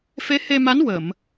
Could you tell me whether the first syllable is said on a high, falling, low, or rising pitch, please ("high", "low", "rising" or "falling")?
rising